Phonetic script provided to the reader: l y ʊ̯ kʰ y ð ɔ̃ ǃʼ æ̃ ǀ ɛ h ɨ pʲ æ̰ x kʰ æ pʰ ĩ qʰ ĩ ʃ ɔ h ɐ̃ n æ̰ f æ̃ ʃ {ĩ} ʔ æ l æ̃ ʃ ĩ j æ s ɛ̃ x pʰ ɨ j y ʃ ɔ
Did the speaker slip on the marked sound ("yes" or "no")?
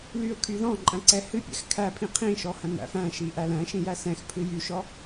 yes